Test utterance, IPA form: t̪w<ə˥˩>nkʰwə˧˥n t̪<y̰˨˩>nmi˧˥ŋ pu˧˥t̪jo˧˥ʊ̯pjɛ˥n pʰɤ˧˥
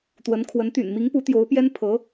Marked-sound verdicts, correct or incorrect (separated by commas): incorrect, correct